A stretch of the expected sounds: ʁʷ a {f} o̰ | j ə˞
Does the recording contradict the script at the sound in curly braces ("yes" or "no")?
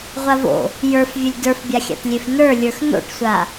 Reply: yes